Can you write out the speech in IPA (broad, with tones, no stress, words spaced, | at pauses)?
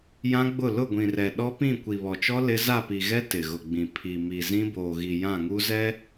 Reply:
jã˦ɡ͡bʊ˦˨ lʊ˦˨ɡʷĩ˨rɛ˨ ɗɔ˦pĩ˦˨ kʷi˨βɔ˨t͡ʃɔ˦ lɪ˦ za˦˨pi˨ɣɛ˦ tɪ˨ɣʊ˨ɡ͡bĩ˨ pʰi˨ mi˨zĩ˦boː˨ɣi˨ jã˦˨ŋu˦zɛ˦